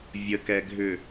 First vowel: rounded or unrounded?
unrounded